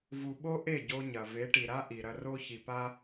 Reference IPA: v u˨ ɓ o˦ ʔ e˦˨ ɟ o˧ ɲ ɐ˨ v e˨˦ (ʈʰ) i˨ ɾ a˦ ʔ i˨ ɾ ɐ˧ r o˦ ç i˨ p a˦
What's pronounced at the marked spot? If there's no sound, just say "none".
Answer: ʈ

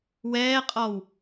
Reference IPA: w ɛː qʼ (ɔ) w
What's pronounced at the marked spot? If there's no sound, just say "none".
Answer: ɔ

